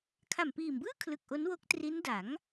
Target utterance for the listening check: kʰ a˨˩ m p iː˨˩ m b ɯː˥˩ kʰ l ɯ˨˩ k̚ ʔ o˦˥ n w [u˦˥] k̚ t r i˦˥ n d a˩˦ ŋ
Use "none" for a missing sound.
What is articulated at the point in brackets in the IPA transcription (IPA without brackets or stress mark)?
o˦˥